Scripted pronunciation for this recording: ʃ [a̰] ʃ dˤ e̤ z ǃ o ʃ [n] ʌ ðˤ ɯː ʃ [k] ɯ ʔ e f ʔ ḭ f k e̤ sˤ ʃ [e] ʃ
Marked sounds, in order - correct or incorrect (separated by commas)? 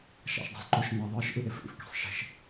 correct, correct, incorrect, incorrect